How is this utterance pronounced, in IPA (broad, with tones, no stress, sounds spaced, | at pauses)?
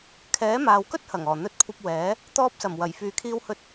kʰ ɛː˨˥ m aː˨ w k ɵ˥ t̚ h ɐ˨˩ ŋ ɔː˨˩ n̪ ɵ˧ t̚ kʷʰ ɐ˧ p̚ w ɛː˨˥ | t̪ ɔː˧ p̚ s ɐ˨˩ m w ɐ˨˩ j f yː˨ kʰ iː˧ w h ɵ˧ t̚